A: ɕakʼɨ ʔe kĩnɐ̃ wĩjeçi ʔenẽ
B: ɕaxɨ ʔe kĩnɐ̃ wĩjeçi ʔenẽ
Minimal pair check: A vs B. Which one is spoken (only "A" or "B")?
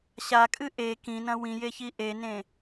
A